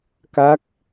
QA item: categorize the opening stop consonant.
plain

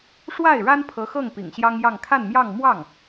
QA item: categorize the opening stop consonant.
aspirated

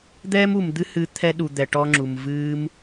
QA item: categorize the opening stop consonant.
plain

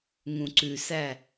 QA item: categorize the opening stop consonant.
click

